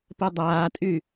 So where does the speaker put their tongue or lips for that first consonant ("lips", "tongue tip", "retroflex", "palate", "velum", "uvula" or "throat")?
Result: lips